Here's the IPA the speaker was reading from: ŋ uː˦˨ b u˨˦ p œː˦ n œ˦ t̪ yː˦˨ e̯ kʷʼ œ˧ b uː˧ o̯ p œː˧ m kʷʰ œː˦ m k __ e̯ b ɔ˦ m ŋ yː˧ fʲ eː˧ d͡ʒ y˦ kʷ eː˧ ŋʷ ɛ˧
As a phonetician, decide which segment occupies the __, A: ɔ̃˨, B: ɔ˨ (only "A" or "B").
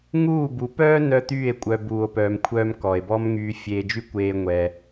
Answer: B